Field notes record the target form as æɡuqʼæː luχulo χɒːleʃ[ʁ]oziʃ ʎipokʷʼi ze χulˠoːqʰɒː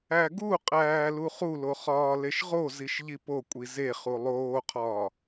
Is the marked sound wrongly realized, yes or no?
no